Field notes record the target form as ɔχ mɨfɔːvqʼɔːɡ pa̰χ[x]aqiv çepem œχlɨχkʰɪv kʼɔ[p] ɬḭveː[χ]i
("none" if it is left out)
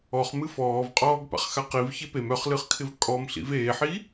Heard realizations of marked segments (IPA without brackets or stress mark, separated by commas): x, m, ħ